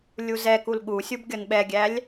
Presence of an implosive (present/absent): present